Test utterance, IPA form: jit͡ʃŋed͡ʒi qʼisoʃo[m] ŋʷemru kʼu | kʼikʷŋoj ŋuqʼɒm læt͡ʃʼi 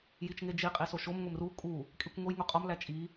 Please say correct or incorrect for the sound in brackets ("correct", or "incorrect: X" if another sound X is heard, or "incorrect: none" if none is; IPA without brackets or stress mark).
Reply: correct